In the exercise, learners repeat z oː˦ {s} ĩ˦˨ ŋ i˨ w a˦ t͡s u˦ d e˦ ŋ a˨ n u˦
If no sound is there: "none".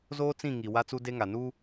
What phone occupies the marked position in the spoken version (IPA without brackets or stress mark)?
t͡s